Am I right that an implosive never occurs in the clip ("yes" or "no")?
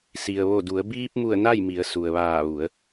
yes